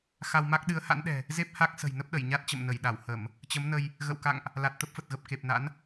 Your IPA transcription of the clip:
x a˧ w m a˦˥ k̚ ɗ ɨ˨˦ ə̯ h a̰˧˥ n ɗ ɛ̤˨˩ | z e˦˥ p̚ h a˦˥ k̚ s ə̤˨˩ j n ə˦˥ p̚ ɗ ə˧˩ j ɲ a˦˥ t̚ t͡ɕ ə̰˧˨ m n ə˧˩ j ɗ a˧˩ w h ə˧˩˨ m | t͡ɕ ə˨˦ m n ə˧ j | ɣ ə̰˧˨ w k a̰˧˨ ŋ ʔ | l a˨˩ t̚ t̪ ə˦˥ p̚ f ə˨˩ t̚ ɣ ə˨˩ p̚ k e˨˩ p̚ n a̰˧˥ n

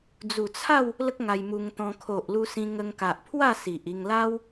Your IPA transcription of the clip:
d͡z u˨˩ t͡sʰ a˥˧ w | l ə˦ k̚ ŋ a˧ j m u˧ ŋ t̪ ɔ̃˧ kʰ o˨ ʔ l u˧ s ĩ˧ ŋ ə˧ ŋ k a˨ ʔ pʰ w a˥˧ s i˨ ʔ i˧ ŋ l a˦ w

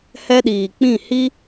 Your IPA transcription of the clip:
h ɛ˦ ɗ iː˨ k͡p ĩ˦˨ h i˦

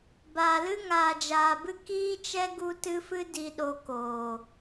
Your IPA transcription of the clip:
b aː˨ l ɨ˦ ŋ aː˨ d͡ʒ aː˨ b ɨ˦ k iː˦ t͡ʃ ɛ˦ ɡ u˦ t ɨ˦ f ɨ˦ d i˨ ɗ o˧ k oː˨

